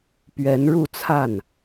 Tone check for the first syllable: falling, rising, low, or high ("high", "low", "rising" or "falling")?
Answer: rising